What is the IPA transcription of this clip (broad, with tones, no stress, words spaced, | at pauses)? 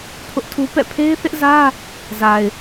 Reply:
pʰʊ˦ʔtʰu˦ pɛ̰˦˨ pʰe˦ɪ̯θɪ˦ʔzä˦ | za˨ɪ̯